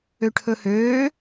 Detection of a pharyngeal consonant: absent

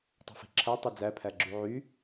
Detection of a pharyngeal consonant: present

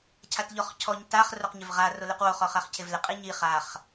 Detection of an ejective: present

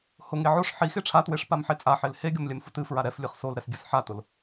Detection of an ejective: present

